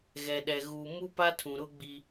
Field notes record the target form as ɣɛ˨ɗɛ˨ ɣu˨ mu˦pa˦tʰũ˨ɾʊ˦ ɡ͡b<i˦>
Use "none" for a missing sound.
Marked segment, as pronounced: i˦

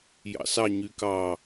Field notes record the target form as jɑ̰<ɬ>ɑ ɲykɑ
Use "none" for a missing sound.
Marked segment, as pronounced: s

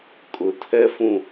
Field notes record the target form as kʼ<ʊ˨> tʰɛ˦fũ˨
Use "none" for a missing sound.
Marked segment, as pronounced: ʊ˨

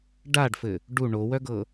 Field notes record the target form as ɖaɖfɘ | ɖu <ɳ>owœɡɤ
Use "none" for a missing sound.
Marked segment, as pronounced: ɳ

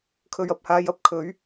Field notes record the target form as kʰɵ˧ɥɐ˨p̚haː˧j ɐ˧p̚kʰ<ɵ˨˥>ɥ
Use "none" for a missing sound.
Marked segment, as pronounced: ɵ˨˥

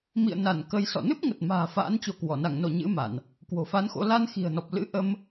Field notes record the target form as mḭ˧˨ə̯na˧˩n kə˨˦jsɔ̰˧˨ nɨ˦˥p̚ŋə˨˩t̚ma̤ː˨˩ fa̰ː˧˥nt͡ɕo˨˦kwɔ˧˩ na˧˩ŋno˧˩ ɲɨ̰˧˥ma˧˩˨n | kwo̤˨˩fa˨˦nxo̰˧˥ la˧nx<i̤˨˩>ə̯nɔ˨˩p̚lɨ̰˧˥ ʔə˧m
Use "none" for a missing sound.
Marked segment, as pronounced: i̤˨˩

